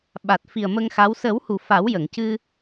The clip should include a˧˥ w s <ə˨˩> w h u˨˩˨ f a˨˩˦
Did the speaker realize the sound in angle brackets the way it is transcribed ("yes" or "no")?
no